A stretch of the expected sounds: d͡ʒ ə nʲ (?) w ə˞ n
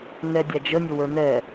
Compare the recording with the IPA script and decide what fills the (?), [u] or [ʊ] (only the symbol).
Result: ʊ